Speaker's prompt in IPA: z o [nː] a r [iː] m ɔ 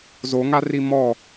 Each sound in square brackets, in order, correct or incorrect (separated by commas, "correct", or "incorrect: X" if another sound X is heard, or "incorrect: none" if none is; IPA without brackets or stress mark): incorrect: ŋ, incorrect: i